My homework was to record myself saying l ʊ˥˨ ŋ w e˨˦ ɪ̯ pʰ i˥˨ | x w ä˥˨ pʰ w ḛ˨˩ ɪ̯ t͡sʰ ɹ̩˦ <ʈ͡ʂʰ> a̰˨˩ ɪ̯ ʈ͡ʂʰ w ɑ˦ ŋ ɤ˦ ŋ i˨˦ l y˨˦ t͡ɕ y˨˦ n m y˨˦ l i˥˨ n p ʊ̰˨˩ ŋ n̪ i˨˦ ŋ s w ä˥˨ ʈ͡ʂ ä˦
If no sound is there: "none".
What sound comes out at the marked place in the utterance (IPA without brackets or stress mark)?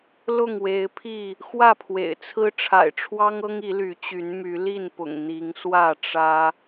ʈ͡ʂʰ